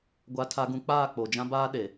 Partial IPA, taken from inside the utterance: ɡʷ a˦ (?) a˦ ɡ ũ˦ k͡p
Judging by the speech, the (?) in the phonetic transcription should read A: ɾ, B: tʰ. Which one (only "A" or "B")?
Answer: B